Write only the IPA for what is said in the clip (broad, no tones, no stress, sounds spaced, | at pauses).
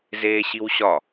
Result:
z eː ɕ i w ɕ ɒ